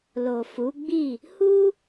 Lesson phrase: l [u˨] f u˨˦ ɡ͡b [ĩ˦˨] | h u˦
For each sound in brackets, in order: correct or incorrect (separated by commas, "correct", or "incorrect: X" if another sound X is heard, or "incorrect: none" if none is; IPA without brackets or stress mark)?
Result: incorrect: o˨, incorrect: i˦˨